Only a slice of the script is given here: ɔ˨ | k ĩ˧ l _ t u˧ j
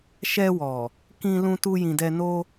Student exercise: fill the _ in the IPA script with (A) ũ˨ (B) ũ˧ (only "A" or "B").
B